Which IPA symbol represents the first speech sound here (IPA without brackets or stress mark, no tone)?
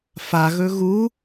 f